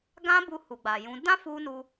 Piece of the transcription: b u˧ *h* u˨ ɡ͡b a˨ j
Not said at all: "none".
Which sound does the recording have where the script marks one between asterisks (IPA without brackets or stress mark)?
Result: h